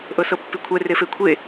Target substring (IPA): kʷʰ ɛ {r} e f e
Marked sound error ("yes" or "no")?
no